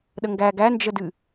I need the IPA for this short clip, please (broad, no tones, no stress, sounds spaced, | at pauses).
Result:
ɗ ə ŋ ɡ æ ɡ æ n d͡ʒ ə d ɨ